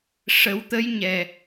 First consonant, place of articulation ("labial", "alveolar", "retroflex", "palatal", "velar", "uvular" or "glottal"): retroflex